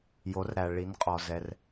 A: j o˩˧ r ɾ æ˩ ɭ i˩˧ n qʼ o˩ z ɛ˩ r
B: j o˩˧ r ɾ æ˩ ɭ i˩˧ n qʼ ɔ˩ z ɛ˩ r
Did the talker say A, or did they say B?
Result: B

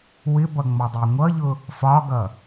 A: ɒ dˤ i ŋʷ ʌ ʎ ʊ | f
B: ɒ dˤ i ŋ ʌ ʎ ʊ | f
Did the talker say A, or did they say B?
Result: A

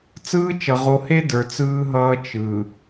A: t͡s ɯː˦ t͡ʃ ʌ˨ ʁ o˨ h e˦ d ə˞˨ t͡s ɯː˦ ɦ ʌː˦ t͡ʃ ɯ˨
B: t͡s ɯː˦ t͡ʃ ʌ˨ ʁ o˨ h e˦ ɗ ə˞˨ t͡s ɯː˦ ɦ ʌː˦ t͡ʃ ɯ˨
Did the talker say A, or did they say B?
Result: A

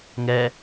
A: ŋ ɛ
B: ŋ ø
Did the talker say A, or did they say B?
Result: A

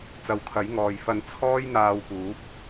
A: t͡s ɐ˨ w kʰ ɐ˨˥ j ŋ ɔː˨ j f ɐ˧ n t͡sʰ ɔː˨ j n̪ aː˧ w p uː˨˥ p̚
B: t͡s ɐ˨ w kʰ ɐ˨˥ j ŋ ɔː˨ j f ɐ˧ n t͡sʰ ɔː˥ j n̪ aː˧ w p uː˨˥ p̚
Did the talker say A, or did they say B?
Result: B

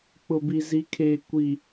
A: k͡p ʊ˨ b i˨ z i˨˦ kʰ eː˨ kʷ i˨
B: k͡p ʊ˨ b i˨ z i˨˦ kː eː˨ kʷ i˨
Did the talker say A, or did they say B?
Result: A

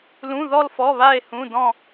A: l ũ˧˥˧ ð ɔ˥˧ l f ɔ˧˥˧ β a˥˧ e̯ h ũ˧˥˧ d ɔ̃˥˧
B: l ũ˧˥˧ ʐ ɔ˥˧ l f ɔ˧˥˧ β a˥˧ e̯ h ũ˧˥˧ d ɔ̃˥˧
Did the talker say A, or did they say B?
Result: A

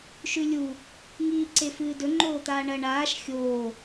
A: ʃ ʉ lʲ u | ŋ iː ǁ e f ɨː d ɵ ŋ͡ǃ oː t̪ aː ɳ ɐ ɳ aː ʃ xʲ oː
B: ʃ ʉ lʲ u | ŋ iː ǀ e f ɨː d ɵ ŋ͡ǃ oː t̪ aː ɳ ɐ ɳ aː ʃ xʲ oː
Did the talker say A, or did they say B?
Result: B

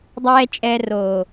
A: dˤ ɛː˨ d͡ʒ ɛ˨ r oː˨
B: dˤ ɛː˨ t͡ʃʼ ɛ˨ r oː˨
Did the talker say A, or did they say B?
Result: B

